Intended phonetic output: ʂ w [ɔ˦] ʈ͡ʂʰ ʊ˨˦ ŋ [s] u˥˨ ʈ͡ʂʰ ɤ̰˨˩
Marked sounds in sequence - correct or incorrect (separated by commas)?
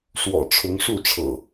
incorrect, incorrect